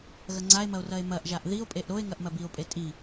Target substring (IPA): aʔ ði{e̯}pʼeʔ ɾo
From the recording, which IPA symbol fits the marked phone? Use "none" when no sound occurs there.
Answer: o̯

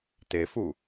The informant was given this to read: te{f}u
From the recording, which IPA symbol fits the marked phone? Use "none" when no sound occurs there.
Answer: f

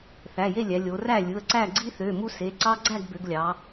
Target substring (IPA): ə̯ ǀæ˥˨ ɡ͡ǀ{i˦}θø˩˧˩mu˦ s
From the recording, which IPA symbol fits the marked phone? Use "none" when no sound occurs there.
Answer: i˦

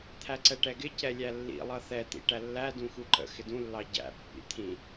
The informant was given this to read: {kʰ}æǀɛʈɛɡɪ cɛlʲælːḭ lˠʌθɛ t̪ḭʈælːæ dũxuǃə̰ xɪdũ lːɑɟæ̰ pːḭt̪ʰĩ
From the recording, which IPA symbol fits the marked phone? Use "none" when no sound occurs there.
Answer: t̪ʰ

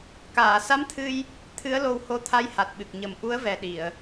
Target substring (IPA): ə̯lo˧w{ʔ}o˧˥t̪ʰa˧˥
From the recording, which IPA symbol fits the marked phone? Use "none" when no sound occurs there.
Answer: h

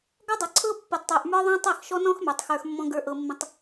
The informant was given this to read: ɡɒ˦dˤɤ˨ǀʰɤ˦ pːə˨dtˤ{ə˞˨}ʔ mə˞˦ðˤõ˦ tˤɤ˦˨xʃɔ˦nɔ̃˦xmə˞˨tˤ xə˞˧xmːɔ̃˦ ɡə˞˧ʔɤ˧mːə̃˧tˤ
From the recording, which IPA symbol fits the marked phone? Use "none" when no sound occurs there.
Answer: ə˞˨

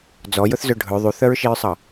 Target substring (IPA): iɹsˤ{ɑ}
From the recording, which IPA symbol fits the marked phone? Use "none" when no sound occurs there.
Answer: ɑ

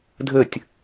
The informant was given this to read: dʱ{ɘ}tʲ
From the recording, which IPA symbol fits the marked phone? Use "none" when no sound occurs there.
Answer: ɘ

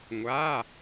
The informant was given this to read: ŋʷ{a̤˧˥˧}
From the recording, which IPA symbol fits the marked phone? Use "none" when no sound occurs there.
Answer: a˧˥˧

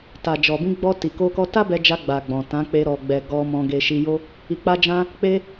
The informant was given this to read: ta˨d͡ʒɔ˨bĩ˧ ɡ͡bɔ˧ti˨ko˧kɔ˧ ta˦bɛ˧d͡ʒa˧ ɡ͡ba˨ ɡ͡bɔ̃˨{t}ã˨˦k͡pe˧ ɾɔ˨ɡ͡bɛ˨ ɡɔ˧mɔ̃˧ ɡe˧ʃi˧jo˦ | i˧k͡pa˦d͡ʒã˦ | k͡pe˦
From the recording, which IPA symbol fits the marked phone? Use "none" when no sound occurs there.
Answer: t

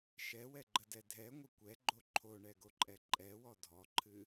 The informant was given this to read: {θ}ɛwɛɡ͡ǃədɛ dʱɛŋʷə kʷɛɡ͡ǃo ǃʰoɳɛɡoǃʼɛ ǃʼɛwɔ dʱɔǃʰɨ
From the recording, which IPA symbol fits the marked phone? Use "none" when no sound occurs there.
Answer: ʃ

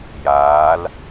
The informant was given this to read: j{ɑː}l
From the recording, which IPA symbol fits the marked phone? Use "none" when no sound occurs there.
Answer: aː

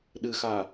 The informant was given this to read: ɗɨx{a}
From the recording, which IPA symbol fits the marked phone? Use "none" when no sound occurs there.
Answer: aː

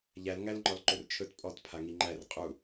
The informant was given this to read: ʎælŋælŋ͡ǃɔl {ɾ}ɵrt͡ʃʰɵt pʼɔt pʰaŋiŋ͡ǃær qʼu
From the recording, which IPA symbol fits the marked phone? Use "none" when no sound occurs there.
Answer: ǃ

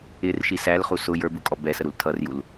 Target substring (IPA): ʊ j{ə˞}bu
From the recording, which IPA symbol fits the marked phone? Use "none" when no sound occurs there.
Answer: ə˞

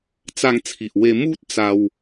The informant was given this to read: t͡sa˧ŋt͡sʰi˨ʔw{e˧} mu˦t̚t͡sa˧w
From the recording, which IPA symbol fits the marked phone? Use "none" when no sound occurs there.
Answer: e˧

